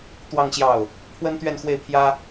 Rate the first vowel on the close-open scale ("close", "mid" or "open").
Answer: open